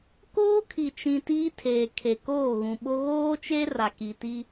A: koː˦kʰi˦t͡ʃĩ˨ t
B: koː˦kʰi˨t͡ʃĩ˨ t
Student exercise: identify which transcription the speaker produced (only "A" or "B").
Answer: B